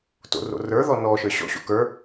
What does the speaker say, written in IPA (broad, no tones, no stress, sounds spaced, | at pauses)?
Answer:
t o̰ r o̰ r ə˞ ð ɔ n ɔ ʃ ə˞ ɕ ɔ̰ ɕ o̰ k ə˞